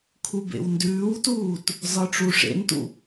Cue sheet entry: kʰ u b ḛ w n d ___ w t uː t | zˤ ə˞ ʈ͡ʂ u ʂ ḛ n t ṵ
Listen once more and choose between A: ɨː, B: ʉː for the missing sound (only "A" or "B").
B